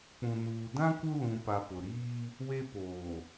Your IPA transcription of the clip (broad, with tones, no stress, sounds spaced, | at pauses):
k͡p ũ˨ n uː˨ d ã˦ k u˦ l ũ˨ p a˨ p ʊ˨ ɾ iː˦ | w e˦ p oː˨